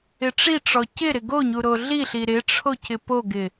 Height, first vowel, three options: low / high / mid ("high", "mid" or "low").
high